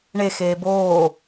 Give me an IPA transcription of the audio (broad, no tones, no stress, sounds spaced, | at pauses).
ɳ e x eː b oː